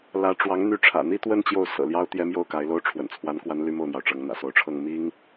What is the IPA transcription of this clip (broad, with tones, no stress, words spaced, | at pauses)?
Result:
lä˧˥ʈ͡ʂwɑ˧˥ŋ n̪y˧˥ʈ͡ʂʰä̰˨˩n̪i˥˧t̪wə˥˧n t͡ɕjo˥˩ʊ̯sɤ̰˨˩ljɑ˥ʊ̯ t̪jɛ˥mjo˥˩ʊ̯ka˧˥ɪ̯lo˥ʊ̯ ʈ͡ʂʰwə̰˨˩nt͡sʰwa˧˥nkwa˧˥nly˧˥ mo˥˩ʊ̯n̪jɑ˩ʊ̯ʈ͡ʂɤ˧˥ŋ n̪ä̰˨˩so˧˥ʊ̯ʈ͡ʂʰɤ˥˩ŋ mi˥ŋ